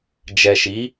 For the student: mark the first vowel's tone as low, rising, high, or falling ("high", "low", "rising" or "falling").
low